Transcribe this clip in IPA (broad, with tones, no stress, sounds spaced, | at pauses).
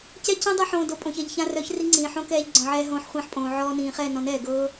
c ɛ˦ c œ̃˦ dˤ ɤ˦ ħ õː˧ d o˧ pʼ õ˨ ç ɛ˨ ʎ ç ã˧ r œ˨˦ ç r i˦ ŋ͡ǀ ĩː˨ ħ õ˦ k ɛː˧ ʎ ɡ͡ǀ ɔ̃˨ ʕ ɛː˧ ɦ õː˧ ħ χʷ ĩː˧ ħ pʼ õː˨ ʕ ɔː˧ n ĩː˨ χ ɛː˦˨ n ɔ̃˨˦ n ɛː˨ ɡ ɤː˦